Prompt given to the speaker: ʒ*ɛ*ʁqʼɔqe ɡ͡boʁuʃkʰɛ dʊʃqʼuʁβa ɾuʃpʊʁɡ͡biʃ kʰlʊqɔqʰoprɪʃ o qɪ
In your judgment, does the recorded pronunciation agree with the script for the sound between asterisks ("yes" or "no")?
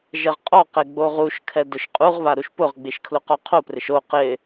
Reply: yes